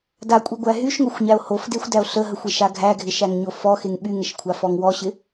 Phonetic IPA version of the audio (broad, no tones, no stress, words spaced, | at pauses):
dakʷʼiɡʷæ ɦyʃŋoxʷɲæo̯ hofdexʷdæo̯ ɬəɦəxʷeʃa ɡʱæɡʱɪʃæŋɲo fɔxeŋ ɓyŋəʃkʷʰafɔŋ wɔɕɪ